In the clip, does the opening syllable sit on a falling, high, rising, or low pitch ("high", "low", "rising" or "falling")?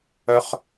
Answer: low